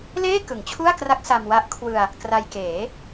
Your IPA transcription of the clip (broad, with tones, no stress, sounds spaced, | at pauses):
l eː˥˩ k ɯ˨˩ ŋ t͡ɕʰ u˥˩ a̯ k r a˦˥ k̚ s a˧ m w a˦˥ ʔ kʰ w ɯ˧ a̯ | k r a˧ j k eː˩˦